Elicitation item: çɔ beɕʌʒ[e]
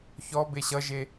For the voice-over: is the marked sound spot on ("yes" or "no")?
yes